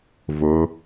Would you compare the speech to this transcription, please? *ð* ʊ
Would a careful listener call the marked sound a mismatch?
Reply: yes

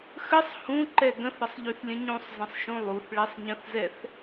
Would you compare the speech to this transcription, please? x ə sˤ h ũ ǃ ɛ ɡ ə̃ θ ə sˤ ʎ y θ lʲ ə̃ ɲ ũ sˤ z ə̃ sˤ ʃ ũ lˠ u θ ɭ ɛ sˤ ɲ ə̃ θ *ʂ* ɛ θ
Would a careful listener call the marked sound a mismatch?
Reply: yes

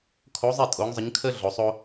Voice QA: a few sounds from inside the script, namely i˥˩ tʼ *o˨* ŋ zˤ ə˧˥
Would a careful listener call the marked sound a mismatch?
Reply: yes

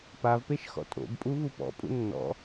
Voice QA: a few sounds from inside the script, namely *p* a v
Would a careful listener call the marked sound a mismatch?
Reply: no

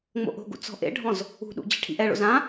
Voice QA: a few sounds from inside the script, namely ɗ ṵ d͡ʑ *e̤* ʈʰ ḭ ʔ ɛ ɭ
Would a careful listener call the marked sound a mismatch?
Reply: no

